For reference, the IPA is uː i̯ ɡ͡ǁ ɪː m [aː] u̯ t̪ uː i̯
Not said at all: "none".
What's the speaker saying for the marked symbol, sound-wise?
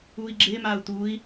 aː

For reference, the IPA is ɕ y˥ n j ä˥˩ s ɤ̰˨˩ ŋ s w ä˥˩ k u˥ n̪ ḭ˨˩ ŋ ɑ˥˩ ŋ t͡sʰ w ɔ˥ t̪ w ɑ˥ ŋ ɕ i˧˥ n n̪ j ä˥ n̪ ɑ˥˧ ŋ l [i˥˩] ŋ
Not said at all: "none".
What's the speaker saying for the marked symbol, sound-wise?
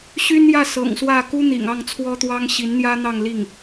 i˥˩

